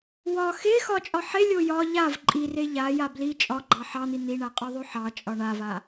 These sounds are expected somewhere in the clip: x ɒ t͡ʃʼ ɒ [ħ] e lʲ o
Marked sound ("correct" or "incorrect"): correct